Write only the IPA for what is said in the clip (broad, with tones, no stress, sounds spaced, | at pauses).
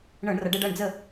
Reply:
ɳ ɤ˧˩˧ ɳ r ʌ˩˧ ɖ ɛ˥˨ ɖ ʌ˥˨ ɳ d͡z ə˥˨